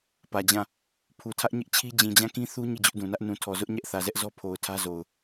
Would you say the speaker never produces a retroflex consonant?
yes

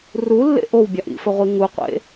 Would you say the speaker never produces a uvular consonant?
no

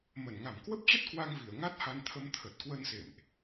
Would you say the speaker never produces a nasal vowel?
yes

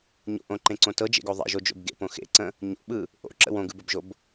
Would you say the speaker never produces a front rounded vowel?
yes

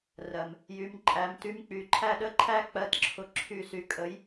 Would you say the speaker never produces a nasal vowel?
yes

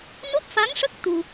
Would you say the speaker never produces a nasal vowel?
yes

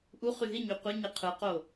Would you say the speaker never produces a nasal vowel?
yes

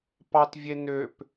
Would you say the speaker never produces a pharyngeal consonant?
yes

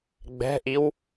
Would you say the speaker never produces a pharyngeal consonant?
yes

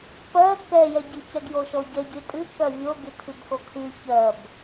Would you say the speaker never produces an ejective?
no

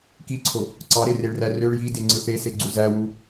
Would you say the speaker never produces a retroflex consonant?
no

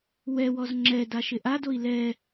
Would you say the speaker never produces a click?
no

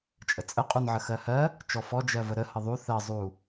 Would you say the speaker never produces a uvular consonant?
no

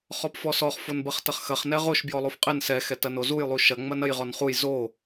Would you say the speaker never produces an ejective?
no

